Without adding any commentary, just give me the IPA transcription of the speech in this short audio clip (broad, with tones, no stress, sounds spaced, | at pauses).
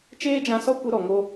t͡ʃ eː˦ d͡ʒ ã˧ s ɔ˦ kʷ e˧ ɾ ɔ˨ ŋ o˦